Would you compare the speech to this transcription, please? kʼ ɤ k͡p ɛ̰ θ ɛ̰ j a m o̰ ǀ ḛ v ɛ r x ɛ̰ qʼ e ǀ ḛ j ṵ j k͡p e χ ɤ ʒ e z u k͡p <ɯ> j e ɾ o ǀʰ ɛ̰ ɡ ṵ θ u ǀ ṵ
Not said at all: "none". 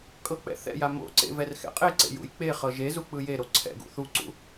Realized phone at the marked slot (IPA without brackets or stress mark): ɯ